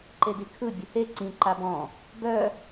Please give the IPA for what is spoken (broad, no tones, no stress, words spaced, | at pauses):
ǃedikʰɯ bʲʊhe ǀĩ ǃabɔ̃ | bœ